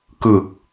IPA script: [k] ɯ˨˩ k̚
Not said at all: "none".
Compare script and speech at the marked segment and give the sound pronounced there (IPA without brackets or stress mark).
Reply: k